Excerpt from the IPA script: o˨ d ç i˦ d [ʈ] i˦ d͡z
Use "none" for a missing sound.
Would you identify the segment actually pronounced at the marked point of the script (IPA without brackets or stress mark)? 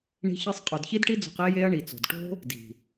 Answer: ʈ